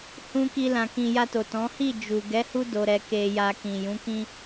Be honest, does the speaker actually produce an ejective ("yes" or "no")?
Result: no